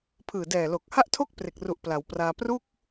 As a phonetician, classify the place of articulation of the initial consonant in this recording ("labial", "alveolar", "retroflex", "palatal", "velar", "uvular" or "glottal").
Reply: labial